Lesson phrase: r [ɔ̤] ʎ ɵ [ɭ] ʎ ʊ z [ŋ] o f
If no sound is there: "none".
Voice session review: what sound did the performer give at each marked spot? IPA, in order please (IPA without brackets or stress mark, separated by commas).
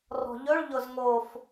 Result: ɔ̤, ɭ, ŋ